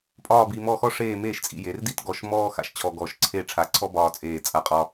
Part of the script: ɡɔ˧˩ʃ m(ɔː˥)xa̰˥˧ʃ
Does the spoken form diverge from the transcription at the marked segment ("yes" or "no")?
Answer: no